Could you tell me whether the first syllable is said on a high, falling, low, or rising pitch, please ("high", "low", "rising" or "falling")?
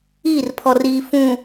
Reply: falling